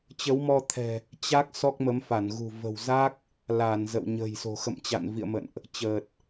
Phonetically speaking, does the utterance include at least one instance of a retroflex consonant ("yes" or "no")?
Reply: no